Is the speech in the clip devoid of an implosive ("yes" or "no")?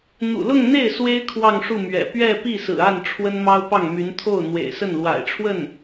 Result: yes